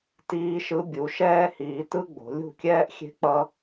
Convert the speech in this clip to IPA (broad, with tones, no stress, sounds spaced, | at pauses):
t iː˧ ʃ ɯ˧ bʲ u˨˦ ʃ ɛː˦ h iː˧ t ɯ˦ ɡ͡b o̤˨˦ lʲ ṳ˦˨ kʲ ɛː˦ ʔ xʲ e̤˦ k͡p ʌ˦